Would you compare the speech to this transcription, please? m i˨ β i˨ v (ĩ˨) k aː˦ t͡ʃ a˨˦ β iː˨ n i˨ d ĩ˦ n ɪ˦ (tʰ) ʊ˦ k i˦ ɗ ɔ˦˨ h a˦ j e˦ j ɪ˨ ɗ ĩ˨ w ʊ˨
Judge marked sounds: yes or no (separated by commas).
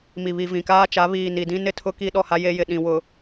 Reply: yes, yes